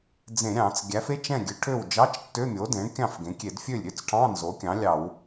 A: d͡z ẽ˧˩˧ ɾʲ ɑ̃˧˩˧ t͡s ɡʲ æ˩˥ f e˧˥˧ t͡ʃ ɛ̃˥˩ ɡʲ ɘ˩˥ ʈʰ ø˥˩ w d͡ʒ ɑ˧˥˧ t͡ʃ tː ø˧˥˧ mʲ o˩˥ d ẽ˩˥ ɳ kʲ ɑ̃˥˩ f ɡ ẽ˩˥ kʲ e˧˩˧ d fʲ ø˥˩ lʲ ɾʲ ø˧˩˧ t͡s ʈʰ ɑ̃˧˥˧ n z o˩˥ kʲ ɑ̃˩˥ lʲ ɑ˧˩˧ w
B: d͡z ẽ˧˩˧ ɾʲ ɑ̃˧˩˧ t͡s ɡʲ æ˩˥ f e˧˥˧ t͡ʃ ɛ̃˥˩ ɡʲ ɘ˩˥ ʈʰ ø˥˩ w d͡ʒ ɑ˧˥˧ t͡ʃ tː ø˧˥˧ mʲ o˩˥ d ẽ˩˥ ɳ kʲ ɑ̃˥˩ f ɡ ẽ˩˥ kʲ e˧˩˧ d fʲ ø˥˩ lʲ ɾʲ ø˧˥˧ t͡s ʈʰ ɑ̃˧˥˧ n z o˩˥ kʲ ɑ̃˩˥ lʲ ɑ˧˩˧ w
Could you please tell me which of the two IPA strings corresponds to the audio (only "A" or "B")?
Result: B